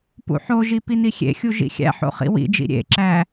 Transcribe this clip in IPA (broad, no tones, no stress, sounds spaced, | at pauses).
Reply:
p ṵ ħ o ʒ i p i n i xʲ ḛ xʲ u ʒ ḭ xʲ æ̰ ħ o̰ χ ḭ w ḭ d͡ʒ ḭ ɾʲ ḛ ǁ æ